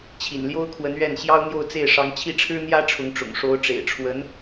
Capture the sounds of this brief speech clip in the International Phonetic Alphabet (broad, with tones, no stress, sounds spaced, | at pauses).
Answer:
t͡ɕʰ ḭ˨˩ n l j o˥ ʊ̯ kʰ w ə˧˥ n ɥ ɛ˥˩ n ɕ j ɑ˥ ʊ̯ n̪ j o˥˧ ʊ̯ t͡s e˥˩ ɪ̯ ʂ ɑ˧˥ ŋ t͡ɕʰ i˥˩ ʈ͡ʂʰ ɻ̩˥ n̪ j ä˥ ʈ͡ʂʰ ʊ˧˥ ŋ ʈ͡ʂ ʊ̰˨˩ ŋ ʂ o˧˥ ʊ̯ ʈ͡ʂ ḛ˨˩ ɪ̯ ʈ͡ʂʰ w ə˧˥ n